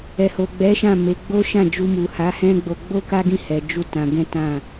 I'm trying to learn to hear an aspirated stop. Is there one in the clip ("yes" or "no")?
no